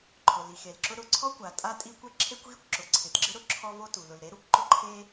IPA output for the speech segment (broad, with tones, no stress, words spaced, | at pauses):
ǃʰʊ˩li˩xe˩lǁʊ˥ ɾʊ˩ǀʰɔ˥kʷa˩ tʼa˥tʼi˥kʷɛ˥ ǁʰe˥kʷɣi˥kʷǁʊ˩ ǀʰɪ˩tɡ͡ǁɪ˥ ɾʊ˥ ǁʰɔ˥vo˥ tu˩ lʊ˩lɾe˥ɾu˥kʷǃʊ˥ ǃʰe˥